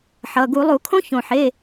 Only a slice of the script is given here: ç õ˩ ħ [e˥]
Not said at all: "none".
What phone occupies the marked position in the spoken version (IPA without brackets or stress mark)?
e˩˧˩